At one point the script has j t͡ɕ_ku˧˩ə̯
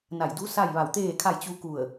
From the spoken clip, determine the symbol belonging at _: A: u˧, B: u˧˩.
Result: A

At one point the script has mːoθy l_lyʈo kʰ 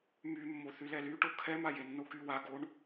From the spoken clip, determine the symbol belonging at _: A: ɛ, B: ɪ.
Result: A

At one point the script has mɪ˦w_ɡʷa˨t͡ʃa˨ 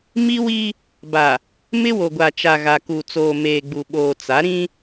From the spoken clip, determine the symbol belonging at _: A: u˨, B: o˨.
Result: B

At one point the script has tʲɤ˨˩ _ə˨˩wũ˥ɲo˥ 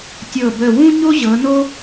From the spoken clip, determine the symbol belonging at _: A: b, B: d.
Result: A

